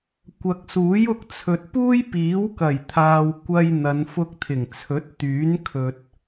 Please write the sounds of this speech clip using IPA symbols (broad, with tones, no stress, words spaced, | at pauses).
kʷɐ˨k̚suː˨˥jʊ˧k̚t͡sʰɵ˨t̚ puː˥jpiː˨˥wkɐ˨˩jt̪ʰaː˨w kʷɐ˧j n̪ɐ˨˧nfʊ˧k̚t̪ʰɪ˨˩ŋ t͡sʰɵ˨˥t̚t̪yː˨˥nkʰɵ˨t̚